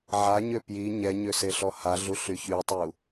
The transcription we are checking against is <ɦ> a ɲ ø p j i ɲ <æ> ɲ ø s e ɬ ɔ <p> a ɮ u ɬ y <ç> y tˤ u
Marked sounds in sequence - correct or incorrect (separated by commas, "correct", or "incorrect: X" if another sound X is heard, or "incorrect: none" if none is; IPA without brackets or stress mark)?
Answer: incorrect: ʕ, incorrect: ɛ, incorrect: h, correct